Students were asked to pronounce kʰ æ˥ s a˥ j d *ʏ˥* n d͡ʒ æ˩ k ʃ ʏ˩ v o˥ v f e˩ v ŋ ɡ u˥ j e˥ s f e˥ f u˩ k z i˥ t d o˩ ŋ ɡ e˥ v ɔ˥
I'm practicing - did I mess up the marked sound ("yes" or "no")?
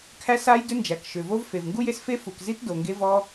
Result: no